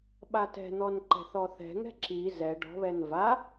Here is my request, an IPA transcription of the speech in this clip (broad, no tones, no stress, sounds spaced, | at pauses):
ɓ a t ɛ̤ n̪ ɔ n ǃ ɛ̤ θ ɔ θ ɛ̤ ŋ ɛ̤ ǁ i z ɛ ɖ ɔ̤ β ɛ n v a